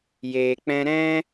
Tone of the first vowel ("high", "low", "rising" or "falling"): low